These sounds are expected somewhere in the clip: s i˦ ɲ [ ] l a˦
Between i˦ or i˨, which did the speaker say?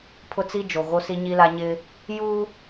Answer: i˦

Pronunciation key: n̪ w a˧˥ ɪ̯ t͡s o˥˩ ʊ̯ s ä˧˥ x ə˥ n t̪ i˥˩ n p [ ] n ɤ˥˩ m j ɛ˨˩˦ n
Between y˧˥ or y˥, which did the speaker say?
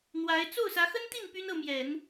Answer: y˥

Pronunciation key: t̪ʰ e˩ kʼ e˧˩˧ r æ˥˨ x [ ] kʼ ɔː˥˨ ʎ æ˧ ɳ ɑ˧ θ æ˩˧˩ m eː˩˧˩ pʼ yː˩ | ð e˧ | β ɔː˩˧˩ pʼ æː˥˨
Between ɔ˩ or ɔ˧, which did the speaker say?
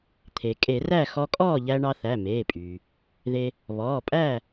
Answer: ɔ˧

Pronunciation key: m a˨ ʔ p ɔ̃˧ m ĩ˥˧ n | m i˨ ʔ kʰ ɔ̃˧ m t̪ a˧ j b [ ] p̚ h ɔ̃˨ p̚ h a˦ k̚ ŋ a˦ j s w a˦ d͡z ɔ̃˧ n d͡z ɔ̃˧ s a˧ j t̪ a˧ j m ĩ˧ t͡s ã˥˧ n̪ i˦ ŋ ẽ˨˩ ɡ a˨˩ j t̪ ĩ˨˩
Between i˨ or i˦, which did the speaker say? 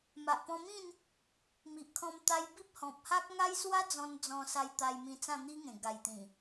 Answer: i˦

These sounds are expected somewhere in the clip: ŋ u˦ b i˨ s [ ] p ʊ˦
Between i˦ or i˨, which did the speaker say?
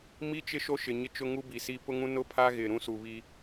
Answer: i˦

